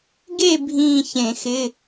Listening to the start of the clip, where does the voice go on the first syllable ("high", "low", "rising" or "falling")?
falling